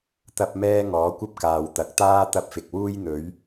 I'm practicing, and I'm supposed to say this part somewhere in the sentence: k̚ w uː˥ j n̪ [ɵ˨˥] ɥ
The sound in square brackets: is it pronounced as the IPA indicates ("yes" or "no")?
yes